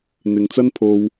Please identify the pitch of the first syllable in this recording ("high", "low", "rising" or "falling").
low